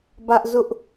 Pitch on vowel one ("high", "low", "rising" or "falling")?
high